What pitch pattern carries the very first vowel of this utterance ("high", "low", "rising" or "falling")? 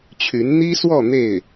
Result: rising